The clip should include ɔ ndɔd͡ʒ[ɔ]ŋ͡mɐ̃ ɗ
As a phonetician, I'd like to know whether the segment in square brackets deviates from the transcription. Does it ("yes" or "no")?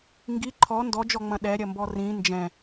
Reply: no